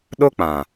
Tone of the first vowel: high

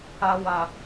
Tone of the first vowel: high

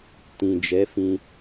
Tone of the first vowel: low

